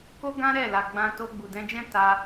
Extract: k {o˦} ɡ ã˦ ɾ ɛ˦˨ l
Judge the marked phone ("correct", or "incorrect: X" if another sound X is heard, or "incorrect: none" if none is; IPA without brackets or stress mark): correct